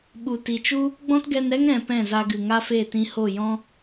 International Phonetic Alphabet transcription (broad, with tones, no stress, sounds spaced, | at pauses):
ɓ u˨ t i˨ t͡ʃ u˦ | ɡ͡b ɔ̃˦ t ɡ ɛ˧ n ɾ ɛ˦ ŋ ɾ ɛ̃˧ p ɛ̃˦˨ z a˧ ɡ ɨ˨ ŋ a˦ f e˦˨ t ĩ˧ h o˦˨ j ɔ̃˦